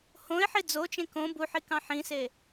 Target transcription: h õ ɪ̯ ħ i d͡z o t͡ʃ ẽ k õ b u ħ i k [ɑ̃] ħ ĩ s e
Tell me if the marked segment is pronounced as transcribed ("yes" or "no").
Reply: yes